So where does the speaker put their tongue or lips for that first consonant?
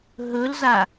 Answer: throat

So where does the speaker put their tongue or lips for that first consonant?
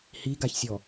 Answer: throat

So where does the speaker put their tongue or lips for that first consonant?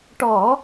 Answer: retroflex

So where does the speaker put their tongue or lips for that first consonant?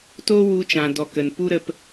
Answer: tongue tip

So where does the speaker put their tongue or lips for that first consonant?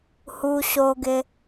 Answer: throat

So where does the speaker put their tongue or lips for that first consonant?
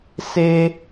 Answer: tongue tip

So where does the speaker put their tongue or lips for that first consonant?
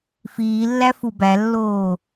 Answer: lips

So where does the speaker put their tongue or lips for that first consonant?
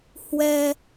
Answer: throat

